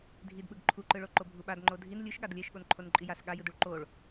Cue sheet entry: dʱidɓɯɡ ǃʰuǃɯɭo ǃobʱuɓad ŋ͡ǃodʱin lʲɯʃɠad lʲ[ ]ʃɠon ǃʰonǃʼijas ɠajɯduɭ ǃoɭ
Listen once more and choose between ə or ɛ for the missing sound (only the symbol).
ɛ